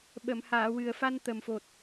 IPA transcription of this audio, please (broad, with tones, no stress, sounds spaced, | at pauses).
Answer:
ɓ ə˨˩˨ m h aː˨˩˨ w ɨ˨˩ ə̯ f a˧ n t̪ ə˨˩ m f o˨˩ t̚